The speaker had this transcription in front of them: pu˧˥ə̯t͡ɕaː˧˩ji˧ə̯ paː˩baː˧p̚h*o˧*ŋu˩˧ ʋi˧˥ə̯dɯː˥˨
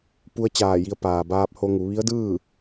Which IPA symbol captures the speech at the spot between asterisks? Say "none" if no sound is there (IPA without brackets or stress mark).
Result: o˧